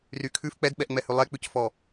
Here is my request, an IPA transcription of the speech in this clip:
rykʰʉf k͡pɛdɓɛʔŋ͡mɛhʉ lˠɛk͡pʉcfɔ

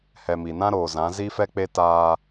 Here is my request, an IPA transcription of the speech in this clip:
hɛ˨mi˨nã˦ ɾoː˨ zã˨˦zi˦fɛ˦k͡pe˦ taː˦

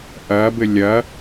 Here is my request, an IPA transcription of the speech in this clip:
ʔɐːbɘ lʲɐ

